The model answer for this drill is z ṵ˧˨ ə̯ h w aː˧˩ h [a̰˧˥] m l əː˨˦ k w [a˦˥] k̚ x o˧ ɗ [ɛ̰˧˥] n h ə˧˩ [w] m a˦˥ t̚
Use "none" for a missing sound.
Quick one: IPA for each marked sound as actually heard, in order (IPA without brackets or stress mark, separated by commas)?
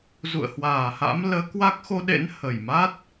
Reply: a̰˧˥, a˦˥, ḛ˧˥, j